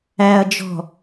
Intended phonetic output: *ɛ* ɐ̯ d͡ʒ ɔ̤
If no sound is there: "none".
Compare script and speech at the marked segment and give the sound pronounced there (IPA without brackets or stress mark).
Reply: æ